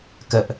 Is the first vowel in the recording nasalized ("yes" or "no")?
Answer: no